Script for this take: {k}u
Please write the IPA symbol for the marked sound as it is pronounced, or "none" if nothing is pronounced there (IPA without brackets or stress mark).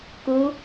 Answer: k